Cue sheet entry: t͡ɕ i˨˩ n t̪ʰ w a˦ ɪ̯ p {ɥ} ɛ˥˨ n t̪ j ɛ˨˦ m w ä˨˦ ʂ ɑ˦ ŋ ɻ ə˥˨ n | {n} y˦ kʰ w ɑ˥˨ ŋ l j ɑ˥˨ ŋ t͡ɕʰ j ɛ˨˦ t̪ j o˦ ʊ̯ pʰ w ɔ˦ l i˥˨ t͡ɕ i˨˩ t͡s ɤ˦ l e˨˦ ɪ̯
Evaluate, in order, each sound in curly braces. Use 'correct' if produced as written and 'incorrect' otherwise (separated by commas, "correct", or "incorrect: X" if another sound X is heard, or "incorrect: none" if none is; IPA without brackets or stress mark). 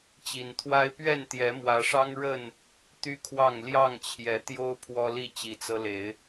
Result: correct, incorrect: t̪